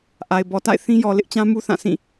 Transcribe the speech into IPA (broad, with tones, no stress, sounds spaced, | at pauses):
ʔ a˨ ɪ̯ b ɔ˨ t a̰˦˨ ɪ̯ θ ĩ˦ j ɔ˨ l ɪ˦ ʔ t͡ɕ ã˦ m u˦ θ ã˦˨ sʰ ĩ˦˨